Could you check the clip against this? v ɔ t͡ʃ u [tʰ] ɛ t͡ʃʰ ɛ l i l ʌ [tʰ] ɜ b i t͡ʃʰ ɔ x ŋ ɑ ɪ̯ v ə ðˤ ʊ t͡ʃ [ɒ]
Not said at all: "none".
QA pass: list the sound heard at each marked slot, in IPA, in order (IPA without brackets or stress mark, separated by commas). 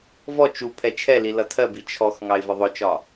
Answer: pʰ, tʰ, ɒ